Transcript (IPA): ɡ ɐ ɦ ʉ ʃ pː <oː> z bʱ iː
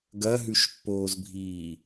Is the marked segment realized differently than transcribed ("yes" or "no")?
no